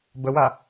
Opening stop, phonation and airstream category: plain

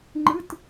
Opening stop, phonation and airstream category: click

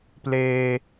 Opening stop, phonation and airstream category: plain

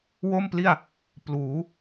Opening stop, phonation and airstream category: plain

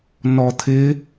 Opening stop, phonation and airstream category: aspirated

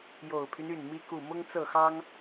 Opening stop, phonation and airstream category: aspirated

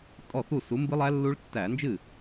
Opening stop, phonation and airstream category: ejective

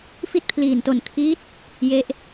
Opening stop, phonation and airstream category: plain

